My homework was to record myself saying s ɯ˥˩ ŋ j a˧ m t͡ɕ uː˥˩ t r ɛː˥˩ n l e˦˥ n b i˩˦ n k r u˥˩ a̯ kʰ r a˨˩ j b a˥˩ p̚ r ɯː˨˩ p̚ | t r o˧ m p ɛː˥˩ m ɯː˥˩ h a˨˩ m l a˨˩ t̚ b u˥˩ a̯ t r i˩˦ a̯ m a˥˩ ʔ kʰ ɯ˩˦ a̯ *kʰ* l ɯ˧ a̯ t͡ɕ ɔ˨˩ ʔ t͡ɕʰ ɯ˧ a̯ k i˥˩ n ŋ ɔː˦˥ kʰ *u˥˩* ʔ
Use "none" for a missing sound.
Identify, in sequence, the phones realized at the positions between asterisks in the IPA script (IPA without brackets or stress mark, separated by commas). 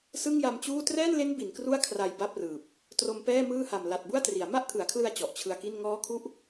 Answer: kʰ, u˥˩